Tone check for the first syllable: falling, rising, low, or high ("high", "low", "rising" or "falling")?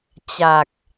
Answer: low